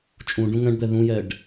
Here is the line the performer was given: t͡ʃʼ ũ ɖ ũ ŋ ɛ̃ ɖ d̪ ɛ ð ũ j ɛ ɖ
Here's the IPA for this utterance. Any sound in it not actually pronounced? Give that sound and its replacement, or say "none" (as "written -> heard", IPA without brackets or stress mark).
none